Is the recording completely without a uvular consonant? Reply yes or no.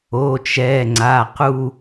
no